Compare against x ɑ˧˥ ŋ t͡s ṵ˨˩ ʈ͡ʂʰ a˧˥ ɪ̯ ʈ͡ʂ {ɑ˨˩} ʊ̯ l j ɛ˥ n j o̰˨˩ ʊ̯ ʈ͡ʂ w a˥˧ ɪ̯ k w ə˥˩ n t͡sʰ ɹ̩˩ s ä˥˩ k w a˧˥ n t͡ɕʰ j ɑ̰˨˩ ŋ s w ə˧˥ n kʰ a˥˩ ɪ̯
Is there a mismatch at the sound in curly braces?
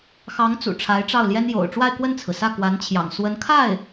yes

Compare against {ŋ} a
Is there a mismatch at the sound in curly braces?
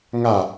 no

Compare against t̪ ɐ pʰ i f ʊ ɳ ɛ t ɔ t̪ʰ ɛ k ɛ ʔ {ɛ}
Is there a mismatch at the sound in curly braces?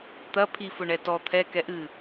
yes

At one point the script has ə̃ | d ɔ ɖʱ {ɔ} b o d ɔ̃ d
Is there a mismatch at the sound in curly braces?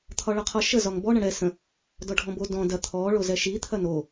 yes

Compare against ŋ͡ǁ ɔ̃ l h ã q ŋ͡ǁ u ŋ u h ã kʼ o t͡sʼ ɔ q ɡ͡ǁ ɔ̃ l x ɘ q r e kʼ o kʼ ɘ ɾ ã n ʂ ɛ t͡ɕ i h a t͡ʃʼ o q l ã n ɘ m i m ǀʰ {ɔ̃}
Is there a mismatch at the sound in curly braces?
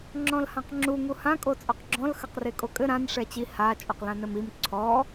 yes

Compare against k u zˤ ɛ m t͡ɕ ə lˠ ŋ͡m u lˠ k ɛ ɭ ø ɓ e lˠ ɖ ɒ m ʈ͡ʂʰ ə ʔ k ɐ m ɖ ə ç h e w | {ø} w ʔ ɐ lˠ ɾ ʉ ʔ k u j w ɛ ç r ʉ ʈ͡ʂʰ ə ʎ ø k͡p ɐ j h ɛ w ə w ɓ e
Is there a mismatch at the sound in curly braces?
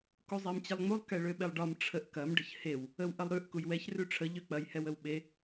yes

